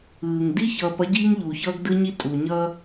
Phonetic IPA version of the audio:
ɯː˨ŋ di˦çʌː˨p ʌ˦ɟiː˦ŋ ʎuː˨çʌː˦ɡ dɯ˦ɲi˦ tʼu˨ɲʌː˦

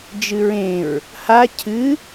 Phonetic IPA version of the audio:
d͡ʒɨɹẽɹ | ha cʰɨ

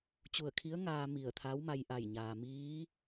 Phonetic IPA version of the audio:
t͡ɕu˧˩ə̯kʰi˧˥ə̯ŋaː˧ mi˧˩ə̯t̪ʰa˧˥wma˧j ʔa˧˩j ɲaː˩miː˧˥

